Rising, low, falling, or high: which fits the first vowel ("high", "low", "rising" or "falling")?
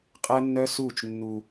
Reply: high